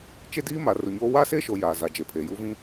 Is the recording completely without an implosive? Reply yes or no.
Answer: yes